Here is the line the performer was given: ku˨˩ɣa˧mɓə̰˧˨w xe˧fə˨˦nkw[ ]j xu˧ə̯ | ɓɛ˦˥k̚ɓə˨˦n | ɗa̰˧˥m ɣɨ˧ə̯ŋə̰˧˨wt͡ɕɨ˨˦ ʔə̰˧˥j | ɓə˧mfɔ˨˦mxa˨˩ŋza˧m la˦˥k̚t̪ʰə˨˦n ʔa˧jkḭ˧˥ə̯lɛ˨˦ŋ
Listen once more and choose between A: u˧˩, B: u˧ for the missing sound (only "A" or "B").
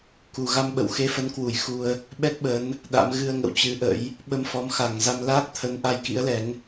A